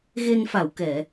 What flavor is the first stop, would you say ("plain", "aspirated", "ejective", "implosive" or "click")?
plain